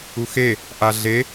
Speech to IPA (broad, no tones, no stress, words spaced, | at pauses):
uxe | ʔaɮe